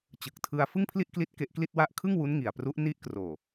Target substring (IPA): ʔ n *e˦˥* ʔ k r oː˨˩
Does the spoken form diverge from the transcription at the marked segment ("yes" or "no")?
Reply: yes